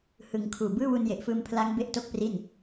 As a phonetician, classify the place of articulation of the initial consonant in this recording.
glottal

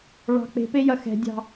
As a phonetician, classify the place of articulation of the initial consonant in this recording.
retroflex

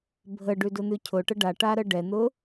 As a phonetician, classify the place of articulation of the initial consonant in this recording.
labial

